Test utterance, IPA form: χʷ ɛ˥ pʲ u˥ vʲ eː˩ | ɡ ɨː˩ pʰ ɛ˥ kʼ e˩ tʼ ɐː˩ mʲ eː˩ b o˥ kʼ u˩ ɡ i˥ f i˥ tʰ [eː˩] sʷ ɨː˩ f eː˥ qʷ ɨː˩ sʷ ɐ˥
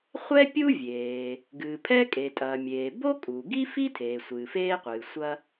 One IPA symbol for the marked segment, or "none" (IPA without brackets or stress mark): eː˩